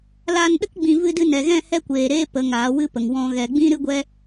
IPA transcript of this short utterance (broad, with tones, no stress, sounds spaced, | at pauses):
l aː˧ n ɗ ə˦ k ɡ͡b ĩ˧ v ɨ˧ d ɨ˧ n ɛ˨ ɣ ɛ̃˦˨ h ɛ˦ kʷ eː˨ ɾ eː˦ p ə˨˦ ŋ aː˨˦ w ɨ˦ p ə˨ ŋ w ɔ̃˨ ɣ ɛ˨ ɡ͡b ĩ˦ ɾ ɨ˦ ɡʷ ɛ˦